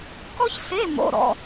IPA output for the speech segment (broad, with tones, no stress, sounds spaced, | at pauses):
k ɔ˥ ç s e˧˥˧ m o̰˧˥˧ ɾ ɔ̰˧˥˧